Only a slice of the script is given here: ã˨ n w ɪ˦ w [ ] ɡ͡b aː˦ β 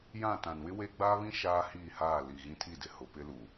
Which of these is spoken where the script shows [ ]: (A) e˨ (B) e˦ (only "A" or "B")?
B